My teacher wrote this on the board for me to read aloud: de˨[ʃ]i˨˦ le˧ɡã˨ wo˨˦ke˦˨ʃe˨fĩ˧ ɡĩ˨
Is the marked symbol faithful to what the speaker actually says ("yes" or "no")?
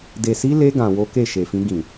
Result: no